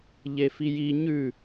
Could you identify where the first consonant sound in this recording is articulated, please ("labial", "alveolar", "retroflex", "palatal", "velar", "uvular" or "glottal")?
palatal